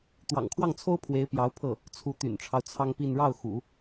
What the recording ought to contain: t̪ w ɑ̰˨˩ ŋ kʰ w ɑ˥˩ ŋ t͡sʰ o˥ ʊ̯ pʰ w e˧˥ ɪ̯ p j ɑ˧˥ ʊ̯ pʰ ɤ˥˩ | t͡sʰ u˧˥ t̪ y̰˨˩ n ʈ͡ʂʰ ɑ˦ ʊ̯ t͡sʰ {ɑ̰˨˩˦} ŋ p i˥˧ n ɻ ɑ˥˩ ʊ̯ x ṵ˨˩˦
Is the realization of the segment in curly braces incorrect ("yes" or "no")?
yes